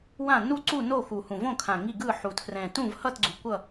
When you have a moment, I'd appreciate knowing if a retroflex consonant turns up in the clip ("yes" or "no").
no